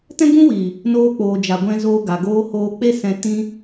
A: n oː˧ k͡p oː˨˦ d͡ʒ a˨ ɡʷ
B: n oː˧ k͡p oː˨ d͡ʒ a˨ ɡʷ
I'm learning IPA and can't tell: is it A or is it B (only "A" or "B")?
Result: B